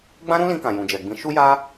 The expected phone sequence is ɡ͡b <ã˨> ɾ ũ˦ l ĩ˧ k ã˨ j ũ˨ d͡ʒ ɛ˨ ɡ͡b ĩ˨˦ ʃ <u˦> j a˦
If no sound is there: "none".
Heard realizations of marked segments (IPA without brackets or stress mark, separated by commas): ã˦, u˦